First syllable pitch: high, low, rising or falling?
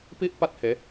high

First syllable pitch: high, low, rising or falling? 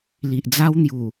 low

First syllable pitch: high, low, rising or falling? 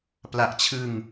low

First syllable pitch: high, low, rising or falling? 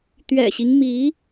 low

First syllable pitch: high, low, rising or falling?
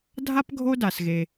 high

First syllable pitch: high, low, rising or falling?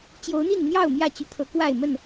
rising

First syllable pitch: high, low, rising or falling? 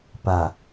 low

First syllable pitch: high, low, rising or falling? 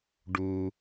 low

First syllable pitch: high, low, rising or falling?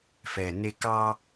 low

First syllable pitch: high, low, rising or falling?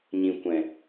low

